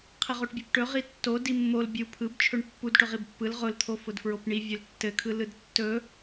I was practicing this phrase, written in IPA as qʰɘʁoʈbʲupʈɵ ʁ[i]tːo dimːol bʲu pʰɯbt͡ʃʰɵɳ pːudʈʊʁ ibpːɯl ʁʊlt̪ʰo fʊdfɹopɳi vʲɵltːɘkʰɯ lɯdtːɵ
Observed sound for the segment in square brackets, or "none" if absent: i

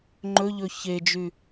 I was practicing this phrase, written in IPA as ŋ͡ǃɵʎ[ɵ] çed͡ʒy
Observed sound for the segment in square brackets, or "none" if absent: ɵ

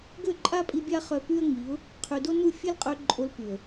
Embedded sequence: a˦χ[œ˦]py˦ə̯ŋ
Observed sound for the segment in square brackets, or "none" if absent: œ˧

